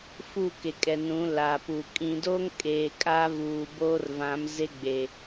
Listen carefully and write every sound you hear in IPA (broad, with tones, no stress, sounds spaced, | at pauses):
f u˦˨ k e˨ kʼ ɛ˨ n ũ˨˦ l a˨ p u˨ kʼ ĩ˨ d o˦ ŋ kʼ eː˨ kʼ aː˦ v uː˨ b oː˦ r v ã˨˦ m z e˦ ɡ͡b e˨